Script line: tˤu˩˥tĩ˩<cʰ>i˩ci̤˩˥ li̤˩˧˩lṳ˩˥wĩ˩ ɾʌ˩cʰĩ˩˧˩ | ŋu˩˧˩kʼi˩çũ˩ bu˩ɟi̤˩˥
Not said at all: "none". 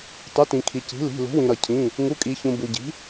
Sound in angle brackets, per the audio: kʰ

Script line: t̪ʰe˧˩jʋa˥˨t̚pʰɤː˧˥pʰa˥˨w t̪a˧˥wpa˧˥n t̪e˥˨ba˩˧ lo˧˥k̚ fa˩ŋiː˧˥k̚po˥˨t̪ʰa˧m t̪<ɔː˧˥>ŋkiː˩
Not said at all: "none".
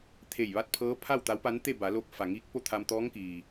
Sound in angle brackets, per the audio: ɔː˧˥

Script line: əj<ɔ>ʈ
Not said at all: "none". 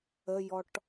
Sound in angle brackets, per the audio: ɔ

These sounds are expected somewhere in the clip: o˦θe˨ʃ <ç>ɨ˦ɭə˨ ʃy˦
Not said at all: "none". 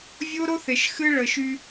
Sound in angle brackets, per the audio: x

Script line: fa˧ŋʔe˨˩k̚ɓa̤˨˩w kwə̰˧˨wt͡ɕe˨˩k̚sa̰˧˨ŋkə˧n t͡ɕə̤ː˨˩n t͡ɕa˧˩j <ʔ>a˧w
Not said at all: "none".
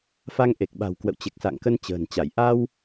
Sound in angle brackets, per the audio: ʔ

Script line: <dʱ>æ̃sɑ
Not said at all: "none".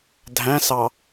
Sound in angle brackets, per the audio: dʱ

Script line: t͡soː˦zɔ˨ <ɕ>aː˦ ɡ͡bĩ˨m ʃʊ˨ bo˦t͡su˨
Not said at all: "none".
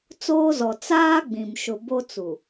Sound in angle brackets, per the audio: t͡s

